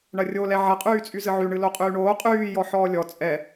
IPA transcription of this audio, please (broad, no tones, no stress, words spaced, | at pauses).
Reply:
ɳɐrʲolɛ ʕɐqʼyːt͡sʼy zɨʕy ɳɨloqʼyːɳoː qʼyːjɔ ħɔːlʲɔ t͡sʼɛ